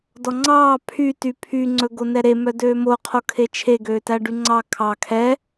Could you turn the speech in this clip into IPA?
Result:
d ɔ ŋ͡ǀ ɑː pʰ y t y pʰ y ŋ͡ǀ ɵ ɡ o n ɛ ɾ e m œ d øː m o qʰ o kʰ e t͡ʃʰ e ɡ øː t æ ɖ y ŋ͡ǀ ɑ kʰ ɑ kʰ ɛ

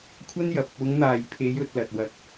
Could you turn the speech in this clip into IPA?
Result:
kʷʰ ɐ˥ n j ɐ˨ p̚ | ʊ˨˧ ŋ n̪ aː˨ j pʰ e˨˧ j ɵ˨˥ t̚ l ɐ˧ t̚ w ɐ˧ k̚

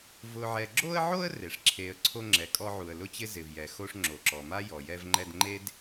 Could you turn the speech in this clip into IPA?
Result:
v ʊ˨ ʕ ɛ˨ ɡ͡ǁ o˦ ə̯ ʕ o˦ ə̯ r e˩ ʂ ǁʰ e˨ ə̯ ǀʰ o˦ ŋ͡ǁ ɛ˨ kʼ ɔ˦ ʕ u˨ ə̯ l ʊ˦ t͡ɕ ɪ˦ z ɪ˩ v j ɛ˩ x o˦ ʂ ŋ͡ǁ o˩ ǁ ɔ˩ m a˥ j ɔ˩ j ɛ˦ v ŋ͡ǃ ɛ˦ d ŋ͡ǃ e˥ d

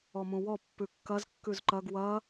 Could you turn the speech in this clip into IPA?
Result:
ɔ m ũ w ɔ pː ʉ kː ɐ z kː ʉ z ǃ ɐ ɡ w ɐ

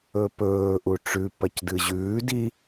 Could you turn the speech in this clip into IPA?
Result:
ɵ p ɵː ʔ u ʈ͡ʂ ʉ p ɐ c d ɨ ʑ ʉː d i

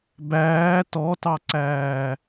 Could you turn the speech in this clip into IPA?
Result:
b æː t ɔ t ɑ ǀ æː

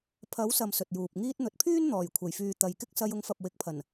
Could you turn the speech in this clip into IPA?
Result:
pʰ ɐ˨˥ w s ɐ˨ m s ɵ˨ t̚ j uː˨ p̚ ŋ iː˧ t̚ n̪ ɵ˨ t̚ pʰ yː˥ n n̪ ɔː˨˩ j kʷʰ ɐ˨˩ j f yː˨ t̪ ɐ˨ j k ɪ˥ k̚ s ɐ˧ j ʊ˨˧ ŋ f ɐ˨ p̚ w ɪ˨ k̚ pʰ ɐ˨˩ n

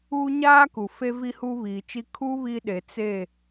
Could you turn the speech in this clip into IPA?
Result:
uː˦ ɲ aː˦ k u˨ f e˦ v i˦ h uː˦ β iː˨ t͡ʃ i˦ kʰ u˦ β i˦ ɗ e˨ t͡s e˦˨

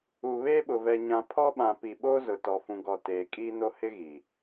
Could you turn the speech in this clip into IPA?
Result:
u˨ β eː˦ ɓ ʊ˨ v ɛ˨ ɲ ã˨ pʰ ɔ˦ ɓ ã˨ p i˨ ɓ oː˦ z ʊ˨ t ɔ˨ f ũ˨ ɡ ɔ˨ t eː˨ kʼ iː˦ n o˦ h ɪ˦ ɣ i˨

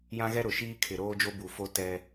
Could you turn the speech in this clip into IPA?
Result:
j ã˦ ɣ ɛ˦ ɾ ʊ˨ ʃ iː˦ kʰ ɪ˨ ɾ oː˦ d͡ʒ o˦ b u˨ f o˦ t ɛ˦

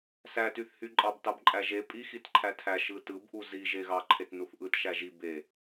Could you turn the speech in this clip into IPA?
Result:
s æ t y θ h y ǃʼ ɑ b t ɑ b ǃʼ æ ʒ e pʼ i x i t ǃʰ æ tʰ æ ʃ ɯ t ɯ b ʔ u z i ʒ e ɣ ɑ ǃʰ e t n u θ ʔ ɯ t ʃ æ ʒ i b e

